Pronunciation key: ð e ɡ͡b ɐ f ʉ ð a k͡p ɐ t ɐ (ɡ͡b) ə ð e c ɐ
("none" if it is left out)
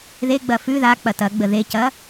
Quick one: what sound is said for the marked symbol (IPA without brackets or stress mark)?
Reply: ɡ͡b